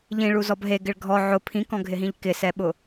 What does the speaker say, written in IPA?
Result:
ʎĩɭuzɔb ɦeɡɪɭ ɡʱɔ ʕʊ pʰĩkɔ̃ɡʱɪɦĩʎ kɪsɛɓʊ

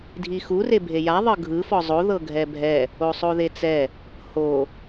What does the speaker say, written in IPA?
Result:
dʱixu rebʱeja ðˤɤɡʱɯ fɔzˤo ðɤɡʱɛbʱɛ | osˤoðet͡sɛ | ho

